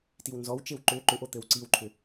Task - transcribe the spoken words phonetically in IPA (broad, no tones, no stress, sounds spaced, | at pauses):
t i w n z ɔ w t͡ʃ e w ǃ ʏ ǃ ʏ ʔ o t̪ ɘ w ǀ i w ǃʰ ʏ